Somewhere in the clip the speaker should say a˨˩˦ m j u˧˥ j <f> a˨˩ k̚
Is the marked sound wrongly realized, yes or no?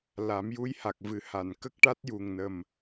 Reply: yes